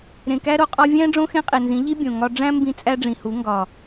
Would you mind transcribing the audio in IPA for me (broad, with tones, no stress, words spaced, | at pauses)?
ɾẽ˨kæ˦ ɾo˧qʼɒ˦ vʲæ̃˦ ɖ͡ʐõ˦xẽ˦qʼe˨nzĩ˨˦ ʎi˦ bʲõ˨ ŋɒ˧ ɖ͡ʐæ̃˦mbĩ˧ t͡sʼæ˦ɖ͡ʐĩ˨hu˨˦ ŋɡɒ˨